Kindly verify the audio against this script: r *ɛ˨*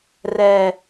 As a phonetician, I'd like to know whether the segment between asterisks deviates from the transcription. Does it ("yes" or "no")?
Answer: no